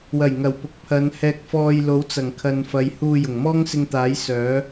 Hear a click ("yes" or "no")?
no